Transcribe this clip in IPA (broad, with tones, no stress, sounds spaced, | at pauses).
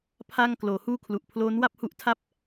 pʰ a˥˩ ŋ k l oː˩˦ h uː˥˩ kʰ l u˨˩ ʔ pʰ l oː˦˥ n w a˥˩ p̚ h u˦˥ ʔ tʰ a˥˩ p̚